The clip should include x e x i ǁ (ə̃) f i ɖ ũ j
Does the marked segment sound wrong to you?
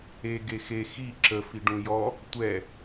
yes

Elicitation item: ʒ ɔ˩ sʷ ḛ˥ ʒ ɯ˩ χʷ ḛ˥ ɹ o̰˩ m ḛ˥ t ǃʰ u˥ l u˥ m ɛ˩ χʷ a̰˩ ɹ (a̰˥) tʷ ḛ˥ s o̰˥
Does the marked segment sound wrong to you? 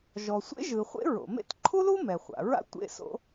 no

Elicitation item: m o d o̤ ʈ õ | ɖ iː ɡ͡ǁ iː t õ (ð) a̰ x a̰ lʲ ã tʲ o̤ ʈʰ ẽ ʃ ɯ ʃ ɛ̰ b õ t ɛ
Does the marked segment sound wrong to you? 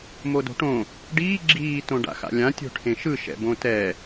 yes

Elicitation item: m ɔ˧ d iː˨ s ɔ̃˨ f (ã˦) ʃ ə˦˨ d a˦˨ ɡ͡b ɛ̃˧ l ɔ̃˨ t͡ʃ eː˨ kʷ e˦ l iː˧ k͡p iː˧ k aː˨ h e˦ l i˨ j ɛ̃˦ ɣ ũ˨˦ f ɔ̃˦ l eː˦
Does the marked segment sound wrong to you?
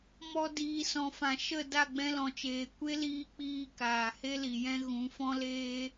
yes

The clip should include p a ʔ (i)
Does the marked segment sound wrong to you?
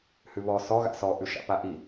no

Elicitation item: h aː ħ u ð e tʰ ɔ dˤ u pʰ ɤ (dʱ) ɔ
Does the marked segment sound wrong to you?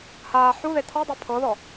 yes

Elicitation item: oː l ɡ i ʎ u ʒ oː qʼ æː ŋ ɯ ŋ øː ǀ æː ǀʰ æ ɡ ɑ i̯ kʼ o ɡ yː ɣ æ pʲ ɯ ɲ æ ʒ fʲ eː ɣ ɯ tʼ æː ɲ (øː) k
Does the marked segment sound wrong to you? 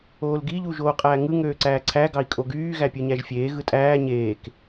yes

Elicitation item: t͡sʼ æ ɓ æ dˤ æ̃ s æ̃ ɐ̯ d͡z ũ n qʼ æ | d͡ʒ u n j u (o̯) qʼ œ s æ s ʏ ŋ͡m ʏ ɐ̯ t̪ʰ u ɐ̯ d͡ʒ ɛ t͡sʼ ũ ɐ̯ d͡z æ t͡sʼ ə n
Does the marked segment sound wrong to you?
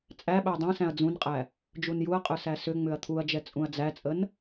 yes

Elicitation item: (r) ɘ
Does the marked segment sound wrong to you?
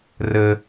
no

